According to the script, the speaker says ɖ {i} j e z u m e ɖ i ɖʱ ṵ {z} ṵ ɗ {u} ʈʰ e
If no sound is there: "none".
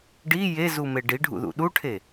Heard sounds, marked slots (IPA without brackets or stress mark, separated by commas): i, ð, u